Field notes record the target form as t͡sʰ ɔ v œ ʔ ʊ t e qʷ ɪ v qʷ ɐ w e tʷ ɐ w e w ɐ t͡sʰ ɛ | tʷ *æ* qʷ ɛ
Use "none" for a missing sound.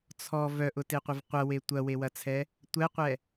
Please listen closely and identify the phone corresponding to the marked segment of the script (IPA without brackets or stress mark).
ɛ